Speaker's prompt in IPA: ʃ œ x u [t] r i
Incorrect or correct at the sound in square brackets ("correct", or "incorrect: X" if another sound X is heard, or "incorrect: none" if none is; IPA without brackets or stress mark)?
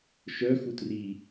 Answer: correct